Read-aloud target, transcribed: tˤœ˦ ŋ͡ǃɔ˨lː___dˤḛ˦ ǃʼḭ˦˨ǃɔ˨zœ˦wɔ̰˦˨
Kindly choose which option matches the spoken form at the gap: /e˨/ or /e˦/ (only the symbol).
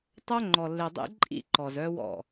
e˨